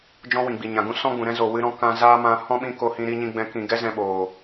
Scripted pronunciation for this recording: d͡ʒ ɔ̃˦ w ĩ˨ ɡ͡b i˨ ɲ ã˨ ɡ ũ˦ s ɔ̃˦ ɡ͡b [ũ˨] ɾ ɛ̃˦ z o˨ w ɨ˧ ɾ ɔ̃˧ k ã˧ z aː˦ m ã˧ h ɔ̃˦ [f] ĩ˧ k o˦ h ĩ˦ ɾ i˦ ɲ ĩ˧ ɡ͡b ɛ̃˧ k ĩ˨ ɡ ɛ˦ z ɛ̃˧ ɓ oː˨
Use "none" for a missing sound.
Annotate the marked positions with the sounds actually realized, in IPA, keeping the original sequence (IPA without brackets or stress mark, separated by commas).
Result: ũ˨, ɓ